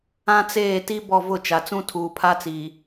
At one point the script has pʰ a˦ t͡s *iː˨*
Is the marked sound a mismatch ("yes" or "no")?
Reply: no